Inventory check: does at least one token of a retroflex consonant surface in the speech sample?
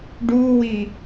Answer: yes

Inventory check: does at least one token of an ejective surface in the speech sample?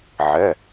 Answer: no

